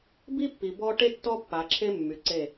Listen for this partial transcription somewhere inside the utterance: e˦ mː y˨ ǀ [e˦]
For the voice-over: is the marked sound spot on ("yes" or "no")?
no